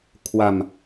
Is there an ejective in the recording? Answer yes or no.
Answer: no